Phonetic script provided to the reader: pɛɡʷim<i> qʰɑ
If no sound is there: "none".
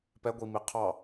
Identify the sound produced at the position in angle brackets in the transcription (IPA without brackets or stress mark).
i